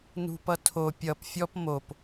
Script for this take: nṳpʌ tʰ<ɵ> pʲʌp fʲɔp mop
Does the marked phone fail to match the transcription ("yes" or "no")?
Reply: yes